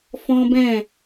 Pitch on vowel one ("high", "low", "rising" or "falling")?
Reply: high